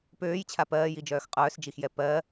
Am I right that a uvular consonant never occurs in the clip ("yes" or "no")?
no